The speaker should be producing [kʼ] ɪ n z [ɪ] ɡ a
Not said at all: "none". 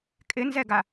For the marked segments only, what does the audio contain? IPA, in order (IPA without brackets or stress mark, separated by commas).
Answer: kʼ, ɛ